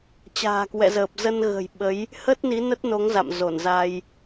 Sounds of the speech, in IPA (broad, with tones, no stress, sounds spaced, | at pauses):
t͡ɕ a̤ː˨˩ k w ɛ̰˧˨ z əː˨˩ p̚ z ə˧ n ɣ ə̤˨˩ j ɓ ə˨˦ j | h ə˦˥ t̚ n i˨˦ n ə˦˥ t̚ n o˨˦ ŋ z a̰˧˨ m z o˧˩ n z a˧ j